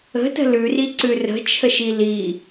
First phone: ə̤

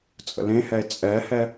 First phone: t͡sʼ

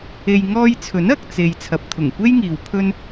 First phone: e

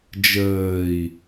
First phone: d͡ʒ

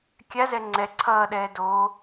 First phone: kʲ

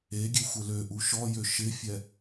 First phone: e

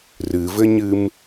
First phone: r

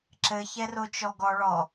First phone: ǁ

